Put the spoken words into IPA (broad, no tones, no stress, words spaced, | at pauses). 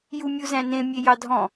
jumʲuzæ̃nẽ mʲejɑdʱɔ̃